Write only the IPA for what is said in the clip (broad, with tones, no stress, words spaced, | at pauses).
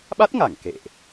ɓa˦˥t̚ŋa˧˩ŋ kḛ˧˨ʔ